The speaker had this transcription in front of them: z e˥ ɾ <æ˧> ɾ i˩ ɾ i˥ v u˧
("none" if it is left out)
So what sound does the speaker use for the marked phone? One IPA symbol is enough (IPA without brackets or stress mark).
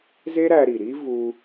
æ˧